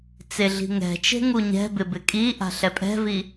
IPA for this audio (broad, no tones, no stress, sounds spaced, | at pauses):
t͡s e ɮ i̤ ŋ ɛ̤ t͡ʃ e̤ ŋ u ɲ ɛ̤ b ɪ b ɪ kʼ i ʔ a̤ ɬ ɛ pʼ ɛ̤ v i